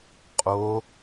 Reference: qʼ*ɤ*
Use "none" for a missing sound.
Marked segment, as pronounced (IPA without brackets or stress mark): o